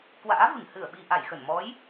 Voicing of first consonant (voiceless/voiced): voiceless